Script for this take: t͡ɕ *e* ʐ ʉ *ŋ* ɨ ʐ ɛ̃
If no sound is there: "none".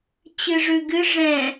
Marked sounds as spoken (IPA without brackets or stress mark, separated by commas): ɨ, ɡ